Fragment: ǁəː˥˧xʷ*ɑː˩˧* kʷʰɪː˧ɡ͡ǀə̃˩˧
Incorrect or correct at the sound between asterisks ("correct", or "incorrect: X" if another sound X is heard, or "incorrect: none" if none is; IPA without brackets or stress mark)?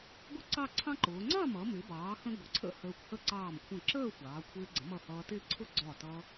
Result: correct